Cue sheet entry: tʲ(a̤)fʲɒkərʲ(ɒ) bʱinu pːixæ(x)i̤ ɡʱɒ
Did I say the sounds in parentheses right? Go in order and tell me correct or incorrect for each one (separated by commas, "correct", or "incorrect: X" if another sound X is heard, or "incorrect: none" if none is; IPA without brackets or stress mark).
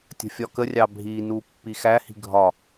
incorrect: ə̤, incorrect: ɑ, incorrect: h